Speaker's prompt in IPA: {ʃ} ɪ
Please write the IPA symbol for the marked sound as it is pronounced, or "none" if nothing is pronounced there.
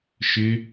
ʃ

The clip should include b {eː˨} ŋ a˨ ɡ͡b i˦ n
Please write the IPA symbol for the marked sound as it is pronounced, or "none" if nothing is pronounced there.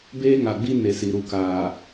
eː˦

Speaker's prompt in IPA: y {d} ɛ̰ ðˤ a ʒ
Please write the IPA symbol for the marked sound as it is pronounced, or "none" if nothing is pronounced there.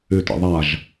t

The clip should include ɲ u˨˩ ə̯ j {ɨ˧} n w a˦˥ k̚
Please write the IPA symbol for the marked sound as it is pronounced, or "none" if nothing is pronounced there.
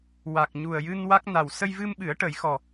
ɨ˧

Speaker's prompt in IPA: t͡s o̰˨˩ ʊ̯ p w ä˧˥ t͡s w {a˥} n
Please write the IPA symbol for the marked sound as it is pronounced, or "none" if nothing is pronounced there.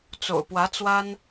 a˥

